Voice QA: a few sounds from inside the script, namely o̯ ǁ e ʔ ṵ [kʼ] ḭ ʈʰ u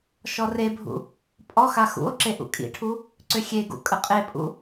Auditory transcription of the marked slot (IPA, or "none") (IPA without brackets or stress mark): kʼ